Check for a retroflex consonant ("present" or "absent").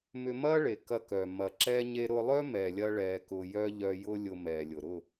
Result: present